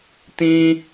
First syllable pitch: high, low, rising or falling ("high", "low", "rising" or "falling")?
high